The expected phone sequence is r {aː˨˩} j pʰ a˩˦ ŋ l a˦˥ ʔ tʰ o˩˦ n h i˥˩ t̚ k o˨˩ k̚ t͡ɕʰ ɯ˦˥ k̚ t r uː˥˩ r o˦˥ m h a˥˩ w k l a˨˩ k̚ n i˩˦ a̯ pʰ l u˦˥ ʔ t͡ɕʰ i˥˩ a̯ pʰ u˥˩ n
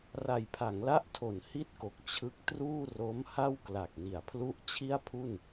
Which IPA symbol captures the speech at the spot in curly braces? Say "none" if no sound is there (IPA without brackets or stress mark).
a˨˩